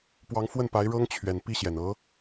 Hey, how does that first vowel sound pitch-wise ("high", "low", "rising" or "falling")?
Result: rising